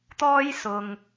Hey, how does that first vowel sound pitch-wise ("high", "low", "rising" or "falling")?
high